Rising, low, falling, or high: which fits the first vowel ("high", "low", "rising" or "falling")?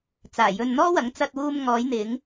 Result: low